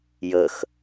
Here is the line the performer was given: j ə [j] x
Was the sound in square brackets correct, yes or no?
no